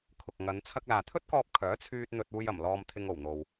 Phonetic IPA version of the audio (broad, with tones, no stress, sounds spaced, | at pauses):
kʰ ʊ˨ k̚ ŋ ɐ˨˧ n t͡sʰ ɐ˧ k̚ l aː˨ t̪ʰ ɵ˥ t̚ k ɔː˧ p̚ kʰ œː˨˥ t͡sʰ yː˧ t̚ n̪ ɵ˧ t̚ uː˧ j ɐ˨˩ m l ɔː˧ m t̪ʰ ɪ˧ ŋ o˨˩ w n̪ o˨ w